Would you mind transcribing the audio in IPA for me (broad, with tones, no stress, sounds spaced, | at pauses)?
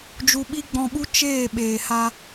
d͡ʒ u˧ ɓ i˦ ɡ͡b ɔ̃˧ ɓ u˦ t͡ʃ eː˦˨ ɓ eː˨ h a˧